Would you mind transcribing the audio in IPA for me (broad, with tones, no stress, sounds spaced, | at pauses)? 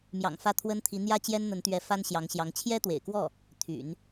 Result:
m j ɑ̰˨˩ ŋ f ä˥˩ t̪ʰ w ə˥ n t̪ʰ i˧˥ n̪ j ä˥˩ t͡ɕ j ɛ˥ n n̪ ə˧˥ n t̪ ɥ ɛ˧˥ f a˥ n ɕ j ɑ˧˥ ŋ ɕ j ɑ˧˥ ŋ t͡ɕʰ j ɛ˥ t̪ w ḛ˨˩ ɪ̯ k w ɔ˥˩ | t̪ʰ y̰˨˩˦ n